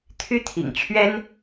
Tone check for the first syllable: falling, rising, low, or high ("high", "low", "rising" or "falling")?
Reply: high